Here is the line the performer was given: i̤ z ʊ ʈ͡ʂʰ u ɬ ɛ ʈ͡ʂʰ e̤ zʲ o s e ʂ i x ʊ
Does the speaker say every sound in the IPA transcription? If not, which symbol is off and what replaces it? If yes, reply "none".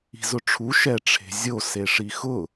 ɬ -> ʃ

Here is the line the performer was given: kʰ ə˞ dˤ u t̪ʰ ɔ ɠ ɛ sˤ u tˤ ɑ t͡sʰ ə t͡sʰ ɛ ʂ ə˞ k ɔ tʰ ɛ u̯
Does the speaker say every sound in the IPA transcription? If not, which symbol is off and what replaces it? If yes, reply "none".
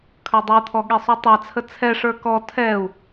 none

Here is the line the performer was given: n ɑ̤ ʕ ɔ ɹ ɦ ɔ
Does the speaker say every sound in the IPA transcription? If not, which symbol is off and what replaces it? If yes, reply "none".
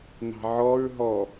none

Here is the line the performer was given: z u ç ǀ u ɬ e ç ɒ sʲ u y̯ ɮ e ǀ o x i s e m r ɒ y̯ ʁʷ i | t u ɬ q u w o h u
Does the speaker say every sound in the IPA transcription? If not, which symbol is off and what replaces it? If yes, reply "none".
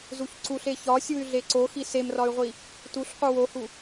none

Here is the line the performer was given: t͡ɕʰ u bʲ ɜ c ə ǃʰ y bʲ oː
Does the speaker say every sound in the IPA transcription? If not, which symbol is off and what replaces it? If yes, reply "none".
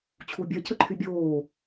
none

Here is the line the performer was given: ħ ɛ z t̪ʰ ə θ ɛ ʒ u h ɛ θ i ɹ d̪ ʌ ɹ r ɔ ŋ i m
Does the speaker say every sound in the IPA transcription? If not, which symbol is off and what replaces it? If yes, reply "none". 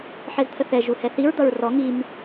none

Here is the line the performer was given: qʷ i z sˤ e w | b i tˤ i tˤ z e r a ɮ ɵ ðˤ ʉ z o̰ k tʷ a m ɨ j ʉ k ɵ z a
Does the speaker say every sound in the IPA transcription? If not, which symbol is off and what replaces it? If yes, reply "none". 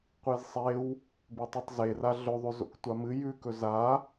none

